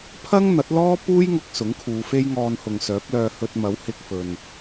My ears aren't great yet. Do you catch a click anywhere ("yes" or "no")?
no